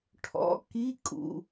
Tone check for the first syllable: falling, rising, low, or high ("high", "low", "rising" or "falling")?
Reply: rising